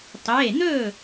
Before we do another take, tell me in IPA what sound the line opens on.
tˤ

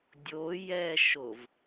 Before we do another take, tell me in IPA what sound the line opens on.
dʲ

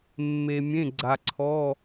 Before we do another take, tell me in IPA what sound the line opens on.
mː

